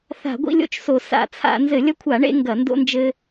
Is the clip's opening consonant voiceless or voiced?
voiceless